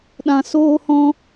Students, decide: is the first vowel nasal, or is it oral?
nasal